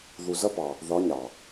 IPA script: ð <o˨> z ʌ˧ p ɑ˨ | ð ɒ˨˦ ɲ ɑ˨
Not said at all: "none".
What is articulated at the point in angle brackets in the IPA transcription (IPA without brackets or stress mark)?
u˨